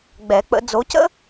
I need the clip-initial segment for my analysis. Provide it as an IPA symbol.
ɡ͡b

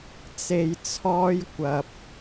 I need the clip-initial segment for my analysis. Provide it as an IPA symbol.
t͡s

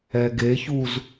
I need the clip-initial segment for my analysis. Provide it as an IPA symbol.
ɛ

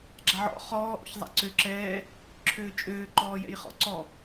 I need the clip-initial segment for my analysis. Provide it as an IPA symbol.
ɡ͡ǁ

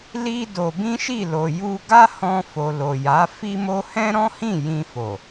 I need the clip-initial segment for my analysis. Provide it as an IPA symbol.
l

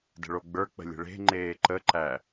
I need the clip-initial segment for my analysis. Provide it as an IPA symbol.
d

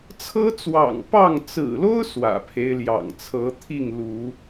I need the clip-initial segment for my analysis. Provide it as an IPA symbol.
t͡sʰ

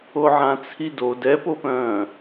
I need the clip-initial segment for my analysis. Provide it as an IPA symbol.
o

